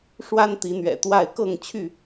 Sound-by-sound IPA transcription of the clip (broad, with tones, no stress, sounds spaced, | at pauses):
ʂ w a˦ n t̪ i˨˦ n̪ ɥ ɛ̰˨˩ t̪ w a˥˨ ɪ̯ k ɤ˥˨ ŋ t͡ɕʰ y˥˨